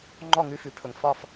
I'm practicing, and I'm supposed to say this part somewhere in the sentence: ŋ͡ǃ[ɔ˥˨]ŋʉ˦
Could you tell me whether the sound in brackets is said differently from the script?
no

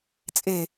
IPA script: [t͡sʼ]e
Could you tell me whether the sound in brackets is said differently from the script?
no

